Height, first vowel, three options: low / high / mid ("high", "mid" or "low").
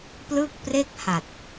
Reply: high